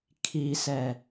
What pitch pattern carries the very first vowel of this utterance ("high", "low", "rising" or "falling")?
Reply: low